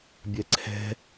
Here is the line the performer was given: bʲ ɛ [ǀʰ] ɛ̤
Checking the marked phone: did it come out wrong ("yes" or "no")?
no